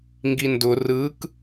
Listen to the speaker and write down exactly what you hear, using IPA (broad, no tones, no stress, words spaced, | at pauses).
ŋɡindʊ rɯk